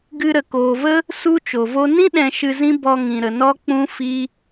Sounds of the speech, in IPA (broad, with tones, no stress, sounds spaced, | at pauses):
ɡ ɨ˧ ɾ ə˨ k oː˨ v ə˦ | s u˧ t͡ʃ o˨ v o˦ n ĩ˦ ɗ ɛ̃˧ ʃ ɨ˧ z ĩ˦ b ɔ˧ ŋ ĩ˨ ɾ ə˨ n ɔ˦ k͡p ũ˧ f i˦